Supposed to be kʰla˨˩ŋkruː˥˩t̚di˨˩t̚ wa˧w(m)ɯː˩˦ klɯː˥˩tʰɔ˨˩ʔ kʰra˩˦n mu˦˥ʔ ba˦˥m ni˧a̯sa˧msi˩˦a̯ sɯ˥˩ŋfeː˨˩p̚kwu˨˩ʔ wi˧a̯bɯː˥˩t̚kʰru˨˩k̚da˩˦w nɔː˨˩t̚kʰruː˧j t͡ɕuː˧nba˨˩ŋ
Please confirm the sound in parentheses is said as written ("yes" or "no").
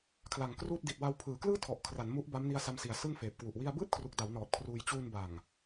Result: no